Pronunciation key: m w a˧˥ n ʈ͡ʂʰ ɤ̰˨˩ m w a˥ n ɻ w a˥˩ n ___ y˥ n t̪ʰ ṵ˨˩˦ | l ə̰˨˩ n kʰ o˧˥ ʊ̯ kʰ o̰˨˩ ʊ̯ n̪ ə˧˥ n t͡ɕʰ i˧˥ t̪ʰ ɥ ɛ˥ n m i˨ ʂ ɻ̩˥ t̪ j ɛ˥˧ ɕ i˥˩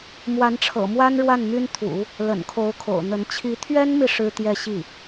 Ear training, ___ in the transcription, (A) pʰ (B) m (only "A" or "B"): B